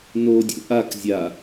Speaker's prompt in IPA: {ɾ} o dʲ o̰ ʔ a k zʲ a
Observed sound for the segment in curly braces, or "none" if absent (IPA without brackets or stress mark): n